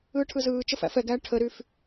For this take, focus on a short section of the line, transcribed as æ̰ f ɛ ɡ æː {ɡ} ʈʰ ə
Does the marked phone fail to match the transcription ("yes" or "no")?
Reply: yes